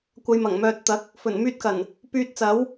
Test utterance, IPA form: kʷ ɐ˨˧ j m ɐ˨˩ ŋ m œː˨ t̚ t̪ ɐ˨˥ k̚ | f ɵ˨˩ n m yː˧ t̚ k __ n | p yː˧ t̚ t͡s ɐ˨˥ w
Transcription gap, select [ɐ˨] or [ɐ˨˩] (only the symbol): ɐ˨˩